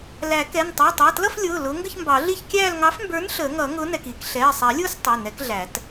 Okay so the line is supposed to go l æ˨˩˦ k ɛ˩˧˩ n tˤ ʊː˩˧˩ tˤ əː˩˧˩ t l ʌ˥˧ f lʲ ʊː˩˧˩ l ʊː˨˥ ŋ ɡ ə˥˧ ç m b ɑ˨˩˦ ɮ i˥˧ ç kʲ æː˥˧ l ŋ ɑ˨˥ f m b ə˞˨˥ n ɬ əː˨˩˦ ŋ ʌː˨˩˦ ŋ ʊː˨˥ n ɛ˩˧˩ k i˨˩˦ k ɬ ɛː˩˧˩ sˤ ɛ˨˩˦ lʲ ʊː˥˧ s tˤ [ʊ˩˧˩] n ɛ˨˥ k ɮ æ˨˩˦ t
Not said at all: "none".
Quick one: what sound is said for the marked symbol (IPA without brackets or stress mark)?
ʊ˩˧˩